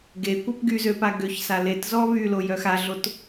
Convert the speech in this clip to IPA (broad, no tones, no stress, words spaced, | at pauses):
ɡekʷœp ɡyzøpa ɡøçsa letzɔ βylojœ xaɮot